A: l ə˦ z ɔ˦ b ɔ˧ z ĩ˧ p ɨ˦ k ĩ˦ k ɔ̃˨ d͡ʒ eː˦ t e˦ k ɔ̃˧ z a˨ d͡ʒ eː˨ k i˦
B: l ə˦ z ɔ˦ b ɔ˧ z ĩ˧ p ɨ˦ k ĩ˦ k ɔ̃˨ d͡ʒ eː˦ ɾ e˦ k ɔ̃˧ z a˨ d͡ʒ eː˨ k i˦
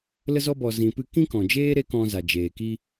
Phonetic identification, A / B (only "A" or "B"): B